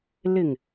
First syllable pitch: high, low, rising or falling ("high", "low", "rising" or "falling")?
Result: low